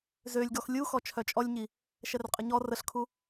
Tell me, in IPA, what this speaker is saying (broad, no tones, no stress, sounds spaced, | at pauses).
z ø lʲ ɡ ɔ x lʲ u x ɔ t͡ʃʰ œ t͡ʃʼ ɔ lʲ ɲ i | ʃ ɛ r qʼ ə ɲ ɔ r ə ɬ kʰ u